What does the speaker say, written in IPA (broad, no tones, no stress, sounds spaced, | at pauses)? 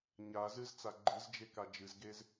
ɲ a z ɨ z t͡s a ɡ͡ǃ ɨ z d͡ʒ e k a d͡ʒ ɨ z ɡ e z